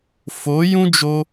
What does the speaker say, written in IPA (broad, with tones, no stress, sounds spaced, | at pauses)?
f o˨˦ j ũ˦ d͡ʒ o˧